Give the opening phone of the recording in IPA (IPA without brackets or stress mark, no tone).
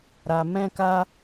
ɾ